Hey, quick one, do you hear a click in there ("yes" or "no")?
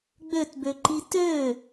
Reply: yes